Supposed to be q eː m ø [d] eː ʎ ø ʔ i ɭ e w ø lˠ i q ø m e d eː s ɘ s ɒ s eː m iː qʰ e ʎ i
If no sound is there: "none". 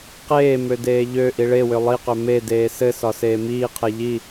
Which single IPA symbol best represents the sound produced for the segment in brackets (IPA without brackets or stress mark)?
d